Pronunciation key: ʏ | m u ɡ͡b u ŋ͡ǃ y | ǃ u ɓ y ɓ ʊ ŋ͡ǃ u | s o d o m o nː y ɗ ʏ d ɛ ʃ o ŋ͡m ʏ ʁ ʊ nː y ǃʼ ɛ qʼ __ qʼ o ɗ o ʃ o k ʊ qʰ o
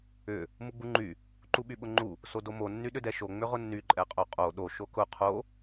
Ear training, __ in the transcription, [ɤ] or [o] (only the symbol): o